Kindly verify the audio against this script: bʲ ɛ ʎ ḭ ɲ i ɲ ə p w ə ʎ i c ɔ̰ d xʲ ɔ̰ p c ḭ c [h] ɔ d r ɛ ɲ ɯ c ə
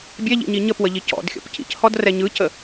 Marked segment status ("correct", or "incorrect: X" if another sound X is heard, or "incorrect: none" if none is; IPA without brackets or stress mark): correct